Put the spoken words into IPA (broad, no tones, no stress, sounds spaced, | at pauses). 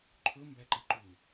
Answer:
ǃʰ ɵ m b æ ǃ i ǃ u